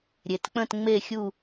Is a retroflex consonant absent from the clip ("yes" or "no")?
yes